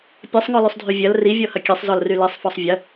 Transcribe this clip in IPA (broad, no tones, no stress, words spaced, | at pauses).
pʲɐsˤŋɔlysˤdʱy vʲɐl rivʲɔhɐ kʲesˤzɔlry lisˤfɔsˤ vʲɐ